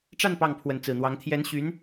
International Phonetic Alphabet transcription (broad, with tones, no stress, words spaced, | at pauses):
ʈ͡ʂa˥˧n pɑ˥˩ŋpʰwə˧˥nt͡sɹ̩˨˩n̪wɑ˧˥ŋ t̪ʰjɛ˧˥nɕy˧˥n